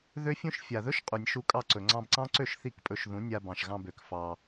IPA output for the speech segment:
ð ø˦ fʲ ũ˦ ʃ fʲ a˨ ð ɵ˦ ʃ qʼ u˨ nʲ ʃ u˧ kʼ ɑ˧ ǀ ɵ˨ ŋ͡ǀ ɑ̃˧ b ǀ ɑ̃˦ ǀ ø˦˨ ʃ θ i˦˨ k pʼ ɵ˧ ʃ ð ũ˨˦ nʲ a˧ b ɑ̃˨ ʃ ɣ ɑ̃˧ b ø˨ k f ɑ˧

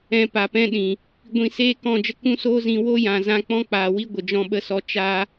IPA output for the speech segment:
ɛ̃˧ p a˨ p ɛ̃˧ ɗ ĩ˨ | ɡʷ ĩ˧ s eː˦ k ɔ̃˦˨ d͡ʒ ə˦ k ũ˦ s oː˦ z ĩ˧ w o˦ j ã˨ z ã˧ k͡p ɔ̃˦ k͡p aː˨ w i˦ ɡʷ ə˨ d͡ʒ ɔ̃˧ ɓ ə˧ s ɔ˧ t͡ʃ a˧

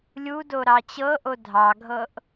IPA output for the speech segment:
lʲ u d o ɾ ɑ t͡ɕ ɤ ʔ o dʱ ɑ ɡʱ ɤ ʔ

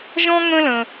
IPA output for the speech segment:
ʒ ɔ̃˥ ŋ ə̃˥ l ə̃˧

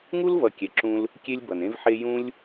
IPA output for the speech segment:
ŋ u˦ l v ʌ˨ kʲ ɛ˨ ǁ ũ˧ l | kʲ e˦ lʲ b ʌ˨ n ẽ˦ v ħ e˦ j ũ˦ lʲ

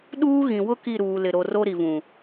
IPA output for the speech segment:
ɗ uː˦ ɣ ĩ˨ w ʊ˦ k i˦˨ ɾ uː˨ l ɪ˨ ɾ o˨ r o˦ ɾ i˨ v ũ˨

